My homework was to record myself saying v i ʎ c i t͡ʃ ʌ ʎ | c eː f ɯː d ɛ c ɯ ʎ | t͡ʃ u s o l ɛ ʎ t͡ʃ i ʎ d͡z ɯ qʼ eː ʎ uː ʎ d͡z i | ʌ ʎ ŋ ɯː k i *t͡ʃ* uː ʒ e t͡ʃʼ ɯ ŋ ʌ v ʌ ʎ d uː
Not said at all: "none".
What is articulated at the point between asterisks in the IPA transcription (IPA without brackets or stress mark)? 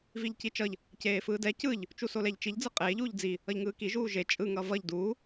ʒ